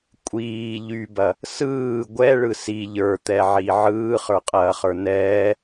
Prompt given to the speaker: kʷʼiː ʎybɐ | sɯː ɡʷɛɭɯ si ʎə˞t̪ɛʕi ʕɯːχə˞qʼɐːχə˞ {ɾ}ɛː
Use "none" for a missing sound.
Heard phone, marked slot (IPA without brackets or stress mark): n